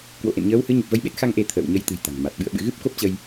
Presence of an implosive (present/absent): present